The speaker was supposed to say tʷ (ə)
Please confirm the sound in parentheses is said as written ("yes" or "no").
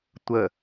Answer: yes